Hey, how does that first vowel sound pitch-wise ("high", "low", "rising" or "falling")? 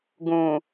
low